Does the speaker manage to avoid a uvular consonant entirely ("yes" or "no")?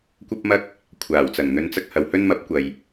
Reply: yes